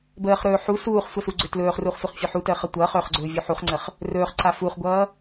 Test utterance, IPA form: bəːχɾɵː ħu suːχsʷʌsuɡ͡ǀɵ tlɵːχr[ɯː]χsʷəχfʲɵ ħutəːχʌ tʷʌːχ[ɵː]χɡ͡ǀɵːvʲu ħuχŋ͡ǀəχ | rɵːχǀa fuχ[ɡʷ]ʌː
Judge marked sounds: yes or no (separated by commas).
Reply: no, yes, yes